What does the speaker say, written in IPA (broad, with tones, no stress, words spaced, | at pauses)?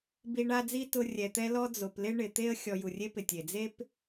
bi˦ɳa˥d͡zi˥ tʊ˦ rʲɛ˨t̪ɛ˦lɔ˦ d͡zo˨plɪ˥ɳɪ˨ t̪e˥ə̯ xʲɔ˨ju˩rʲe˦pɪ˩ tʲe˩d͡ze˥p